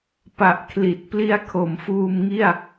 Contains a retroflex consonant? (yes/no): no